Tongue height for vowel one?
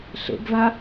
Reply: mid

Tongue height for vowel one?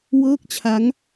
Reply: mid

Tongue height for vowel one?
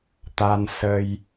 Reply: low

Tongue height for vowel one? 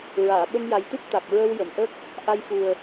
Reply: low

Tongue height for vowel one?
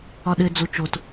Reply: low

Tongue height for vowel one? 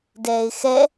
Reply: mid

